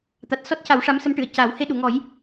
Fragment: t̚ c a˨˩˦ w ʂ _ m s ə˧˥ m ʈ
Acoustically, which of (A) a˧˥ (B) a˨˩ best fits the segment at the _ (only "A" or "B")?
A